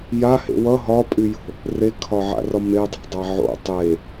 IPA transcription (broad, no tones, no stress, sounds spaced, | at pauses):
j a h ḛ w ʌ ɦ ɒ pʼ y j o̤ | r e kʰ ɒ ʕ a̰ r ɒ m e dˤ a̤ dˤ a ʕ o̰ tˤ e